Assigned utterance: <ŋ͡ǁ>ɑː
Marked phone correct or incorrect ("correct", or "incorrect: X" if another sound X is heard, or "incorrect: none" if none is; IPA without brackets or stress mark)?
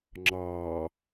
correct